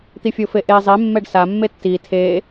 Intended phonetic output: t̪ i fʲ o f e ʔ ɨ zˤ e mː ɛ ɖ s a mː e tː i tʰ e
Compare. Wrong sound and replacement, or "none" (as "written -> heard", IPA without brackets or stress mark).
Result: ɨ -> e